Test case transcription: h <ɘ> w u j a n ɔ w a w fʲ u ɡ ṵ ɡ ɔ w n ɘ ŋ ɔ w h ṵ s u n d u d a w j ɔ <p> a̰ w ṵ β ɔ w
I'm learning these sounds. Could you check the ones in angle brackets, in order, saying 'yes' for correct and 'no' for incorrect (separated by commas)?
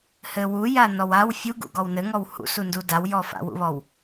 yes, no